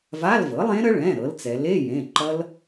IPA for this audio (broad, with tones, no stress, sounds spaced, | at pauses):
v a˧˥˧ l v ɤ˩˥ lˠ ẽ˦˥ ɾ ə˦˥ ɭ ɛ̃˩˧˩ ɾ ɤ˩˧ l t͡s ɛ˩˧ l e˧˥˧ j ẽ˩˧˩ ǃ ʌ˦˥ l